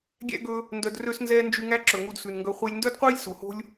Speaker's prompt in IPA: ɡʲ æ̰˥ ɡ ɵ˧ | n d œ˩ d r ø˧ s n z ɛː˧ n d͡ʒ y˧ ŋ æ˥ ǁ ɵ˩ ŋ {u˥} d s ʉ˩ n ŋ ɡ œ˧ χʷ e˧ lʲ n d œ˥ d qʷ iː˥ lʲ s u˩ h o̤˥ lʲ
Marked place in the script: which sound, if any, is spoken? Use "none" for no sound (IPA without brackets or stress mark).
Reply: u˧